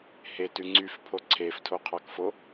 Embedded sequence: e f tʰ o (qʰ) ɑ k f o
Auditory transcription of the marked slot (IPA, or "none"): qʰ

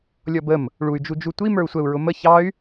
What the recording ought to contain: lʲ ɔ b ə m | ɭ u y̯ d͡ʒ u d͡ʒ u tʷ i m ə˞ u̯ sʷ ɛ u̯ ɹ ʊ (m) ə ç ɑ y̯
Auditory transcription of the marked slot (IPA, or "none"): m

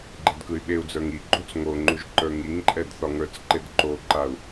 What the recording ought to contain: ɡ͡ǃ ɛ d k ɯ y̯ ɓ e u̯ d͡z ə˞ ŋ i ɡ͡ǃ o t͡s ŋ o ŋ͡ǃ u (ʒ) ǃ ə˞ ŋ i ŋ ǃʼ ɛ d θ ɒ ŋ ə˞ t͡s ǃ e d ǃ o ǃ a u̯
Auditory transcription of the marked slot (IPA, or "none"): ʒ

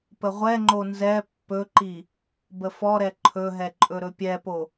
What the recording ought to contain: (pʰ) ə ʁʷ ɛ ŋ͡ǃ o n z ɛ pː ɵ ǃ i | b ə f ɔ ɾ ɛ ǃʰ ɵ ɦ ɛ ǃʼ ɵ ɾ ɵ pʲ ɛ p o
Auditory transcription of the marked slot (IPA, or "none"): p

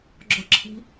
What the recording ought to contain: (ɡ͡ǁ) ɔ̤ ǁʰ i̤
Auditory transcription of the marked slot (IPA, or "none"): ɡ͡ǁ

